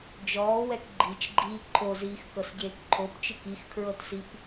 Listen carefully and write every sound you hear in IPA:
d͡ʒɔːwɛk ɡ͡ǃit͡ʃɡ͡ǃiː ǃʰoziːxkɤsɟeːk ǃʰopt͡ʃɯk ixkʰɹɤtsip

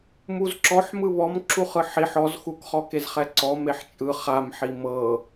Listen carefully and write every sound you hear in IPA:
muzǁɔħmɯ βɔm ǁuχɯħiħ ɔzxukχɔ kezχɛǀɔ meħt͡ʃʼɯ χamħi mɤ

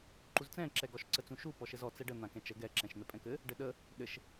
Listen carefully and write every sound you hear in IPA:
ǃuzt͡sɛ̃ǁɛɡɔʃ ǀət͡sũʃu pɔʃɘzɔ t͡sɛɖə n̪ãkɛ̃t͡ʃə ɡɛ ǁɛ̃ʃn̪ɛpʼɛ̃kɘ | ɖɘɗə | ɗɘʃ

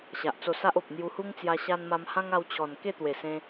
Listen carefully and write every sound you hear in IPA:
ɕa˨ʔt͡so˧sa˦ʔo˨p̚ n̪ju˧hu˦ŋt͡sja˧ ɕa˧n ma˧mhã˦ŋa˧wt͡ɕʰɔ˨˩n ke˥˧t̪we˨˩sẽ˧

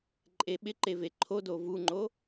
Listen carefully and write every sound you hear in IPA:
ǃʼeɓɪǃe veǃʰodo vuŋ͡ǃo

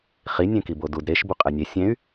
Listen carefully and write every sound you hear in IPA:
χi nʲẽkibodud ɾeʃ buqʼɛnʲe sʲẽy̯

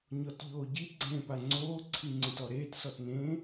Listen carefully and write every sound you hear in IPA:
ɲɔtʎoːɟi ɡ͡ǀẽːpaŋ͡ǀoː ǀʰiŋ͡ǀẽtɔɾeːt sɔtnẽː

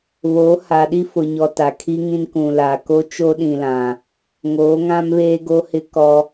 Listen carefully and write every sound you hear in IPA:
βoː˨˦ha˨ɗi˦ fʊ˨ɲɔ˨ ta˨kʰi˦ŋĩ˦n kũ˨la˨ ko˦ t͡ʃo˦ɗĩ˨lã˨ | ŋoː˨˦ŋã˦mβeː˦ ɡo˦hɪ˦kɔ˦

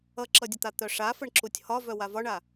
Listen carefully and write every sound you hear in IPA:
ʌǁʌdʲət̪a t̪œʂafəɳǁutʲ hɒvœ wavɒɳa

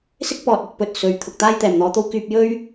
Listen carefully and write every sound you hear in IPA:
sɪ˥k̚ pɔː˨t̚ɵ˧t̚ pɵ˧t̚sɵ˨˥ɥt̪ʰʊ˨k̚ t̪aː˥jt̪ɛː˨˩mn̪ɔː˨˧t̪o˥w kyː˧p̚jɵ˥ɥ

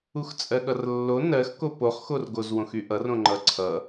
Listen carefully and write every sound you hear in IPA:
uxt͡sʼɜɠʌrlːo nɜxko poχxorɡoz wõxyʔʌr õŋ͡ǃʌǀʰʌ

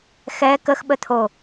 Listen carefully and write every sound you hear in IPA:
xɛ kəxɓət̪ʰo

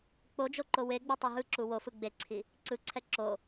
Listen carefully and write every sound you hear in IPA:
k͡pod͡ʒo ǃoweɡ͡bu tˤoɦɯǁu wofɯ ɡ͡beǀʰi | ǀɯǀʰɛ ǁo

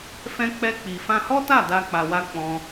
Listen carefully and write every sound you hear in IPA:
fɛ̃˧ k͡pɛ˧k͡pi˨ fã˧hɔ˦ta˦˨ da˧k͡pa˨ wa˧ k͡pɔ̃˧

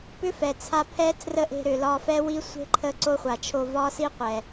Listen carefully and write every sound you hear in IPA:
pʏ˦fɛ˨t͡sʰa˧ pʰɛ˦tʰrə˦ʔe̤˧ ɾʏ˨lɒ˧fɛ˦wi˦ sʷe̤˦ǃʰə˧ ǀo˦χʷa˨t͡ʃʰo˧ vɒ˦si˦qʷɛ˨

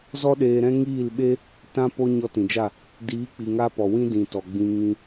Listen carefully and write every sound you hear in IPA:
zɔ˦ɗeː˧ɾɛ̃˦ ŋiː˦˨lɓe˦ | tã˧po˧ ɲɔ˧tĩ˨d͡ʒa˦˨ | diː˨˦k͡pi˨ŋa˧pɔ˨ wĩ˦dĩ˨tɔ˨ɡ͡bĩ˧ ŋĩ˧

